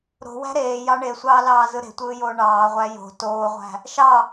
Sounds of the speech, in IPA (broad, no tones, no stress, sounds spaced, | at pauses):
ɾ o̤ w æ̤ ɾ eː j ɑ ɳ e sʷ ɑː l ɑː z ɯ ɾ e̤ tʷ ɯː j oː ɳ ɑː ʁʷ æ j o̤ t oː ʁʷ æ̤ | ʃ ɑ